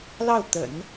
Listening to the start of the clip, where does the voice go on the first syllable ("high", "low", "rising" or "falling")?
falling